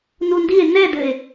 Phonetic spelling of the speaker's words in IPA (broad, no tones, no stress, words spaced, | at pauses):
nundie̯ nɛdɘe̯